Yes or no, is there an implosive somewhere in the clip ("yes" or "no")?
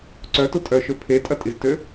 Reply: no